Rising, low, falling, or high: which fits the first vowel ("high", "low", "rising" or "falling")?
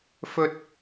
high